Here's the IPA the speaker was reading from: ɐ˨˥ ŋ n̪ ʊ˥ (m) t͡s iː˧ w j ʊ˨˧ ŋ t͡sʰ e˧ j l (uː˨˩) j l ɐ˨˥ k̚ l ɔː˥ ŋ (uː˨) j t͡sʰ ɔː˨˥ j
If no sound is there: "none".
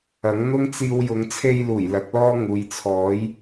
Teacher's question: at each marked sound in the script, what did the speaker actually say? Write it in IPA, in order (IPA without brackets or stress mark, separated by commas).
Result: ŋ, uː˨˩, uː˨